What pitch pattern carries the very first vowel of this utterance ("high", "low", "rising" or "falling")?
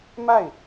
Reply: falling